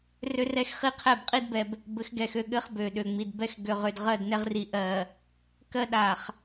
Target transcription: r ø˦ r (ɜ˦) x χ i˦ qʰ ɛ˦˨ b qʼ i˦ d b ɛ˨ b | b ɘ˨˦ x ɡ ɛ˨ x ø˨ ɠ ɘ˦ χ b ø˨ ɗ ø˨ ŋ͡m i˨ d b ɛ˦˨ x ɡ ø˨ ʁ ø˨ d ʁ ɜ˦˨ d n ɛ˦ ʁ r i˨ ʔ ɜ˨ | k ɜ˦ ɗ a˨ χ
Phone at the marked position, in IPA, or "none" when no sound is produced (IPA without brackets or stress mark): ɛ˦